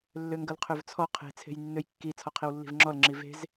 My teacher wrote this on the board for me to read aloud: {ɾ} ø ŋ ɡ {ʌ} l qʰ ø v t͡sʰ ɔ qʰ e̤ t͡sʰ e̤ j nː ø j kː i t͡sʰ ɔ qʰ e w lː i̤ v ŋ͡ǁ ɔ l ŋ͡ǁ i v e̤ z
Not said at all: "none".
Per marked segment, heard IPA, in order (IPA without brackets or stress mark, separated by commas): lː, ʌ